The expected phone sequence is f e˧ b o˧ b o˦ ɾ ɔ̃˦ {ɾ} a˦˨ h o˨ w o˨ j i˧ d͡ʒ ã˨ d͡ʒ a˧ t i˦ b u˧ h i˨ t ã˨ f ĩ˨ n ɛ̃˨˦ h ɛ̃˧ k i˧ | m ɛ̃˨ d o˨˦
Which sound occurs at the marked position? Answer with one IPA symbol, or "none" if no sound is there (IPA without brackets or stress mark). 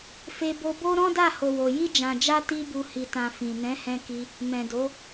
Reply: d